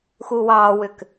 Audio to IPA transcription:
xuwɑwʏk

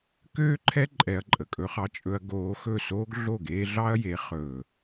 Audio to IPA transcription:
køː˦ǃʰɛ˦ ǃʼɛ˧ɐ̯ǃʼə˨kʼɵ˦χɑ˦ t͡ʃʼɵ˧ɐ̯ ɡoː˧ xɵ˦˨soː˦ɡ ɮo˦˨ ɡeː˧ɮɑ˦ɐ̯je˨˦ χɵː˨

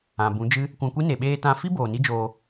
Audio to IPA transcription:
ã˨bũ˨˦d͡ʒɨ˦ | kʷã˧kʷi˦ ne˨ɓeː˧tã˧ fi˦ boː˨ni˦d͡ʒoː˧

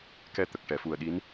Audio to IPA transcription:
kɛ˧t̪ə˨˩k̚ ʈɛ˨˩˨fu˨˩ə̯ɗi˧˥n

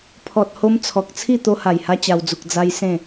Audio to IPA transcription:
pʰɔ˨t̚ho˧m t͡sʰɔ˨k̚t͡sʰi˥˧ t̪o˧ha˨˩jha˧ t͡ɕa˧w d͡zu˨k̚ d͡za˧j sẽ˥˧

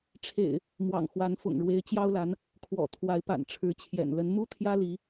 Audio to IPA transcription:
ʈ͡ʂʰḛ˨˩ɪ̯ | mwɑ̰˨˩ŋxwa˨˦nfʊ̰˨˩ŋ ɻwe˨˦ɪ̯t͡ɕjɑ˦ʊ̯la˨˦n | kʰwɔ̰˨˩t̪ʰwa˨˦ɪ̯ pa̰˨˩nʈ͡ʂʰɻ̩˨˦ t͡ɕʰjɛ̰˨˩nlə˨˦n mu˦t̪ʰjä˦li˨˦

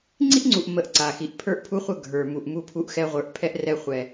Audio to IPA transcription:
ŋ͡ǀi˦ʔŋ͡ǀu˨ʔmə˨ʔ ǀa˨xi˨ʔ pʰə˞˦ʔpʰu˦χʷə˦˨ ɡʱə˞˨ mu˨ʔ mu˦pʰu˦ʔxɛ˦ ʁʷə˞˨ʔ pʰɛ˦ʔrɛ˦ χʷɛ˦

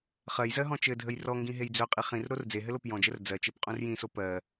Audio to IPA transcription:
χɜjzɜɦɔ̃ t͡ʃɘdʱəj rɔŋɡĩɦej d͡zœqʼi χĩrɾor d͡zeɦɘlop jɔ̃d͡ʒər d͡zɜt͡ʃepqʼũr jĩso pɜ

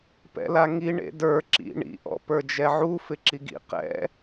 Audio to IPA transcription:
pɛ̰laŋi ɳḛdə˞ ǁḭ ɳḭ ʔɔ̰pə˞d͡ʒɛʕu fɪǁiɡḭ qɛ̰

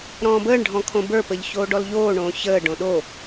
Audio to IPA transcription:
ɾɔ̃ːbəːɳɖʱɔ̃ kʰõbə˞pəʎ çoːɖɔlʎoːɳõː çəːɖõ ɗo

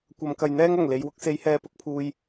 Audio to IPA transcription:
kʷɐ˨˧mkɐ˨jn̪ɛː˥ŋ ɐ˨˩ŋ le˨˧jwʊ˧k̚se˧j hɛː˧pʊ˨˥k̚pʰuː˧j

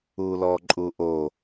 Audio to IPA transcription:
ulɔǃʼuʔo

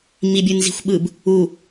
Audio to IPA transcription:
mibʲɯnzi̤xʷɓɯb | u

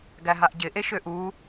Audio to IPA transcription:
ɡæɦaʔɟɪ ʔeʃøʔu

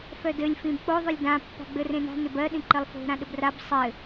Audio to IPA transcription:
fœdɘlʲ fĩbk͡poðˤʏlʲ dãpːa̤ ɡ͡bɘrẽna̤ nʏbɜɗĩ ǃɘlˠfo̤ ɾãɗɘbrab sˤɘ

